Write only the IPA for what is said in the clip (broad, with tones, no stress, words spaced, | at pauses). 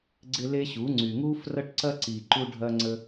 ɡ͡ǀɪ˦le˦ ɕu˨˦ ŋ͡ǀy˨ŋu˦ frɐ˦ʈǀɐ˦ǀi˨ ǃu˦ɖʱɐ˦ŋ͡ǀə˦